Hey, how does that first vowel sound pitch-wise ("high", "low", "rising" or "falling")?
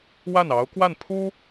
falling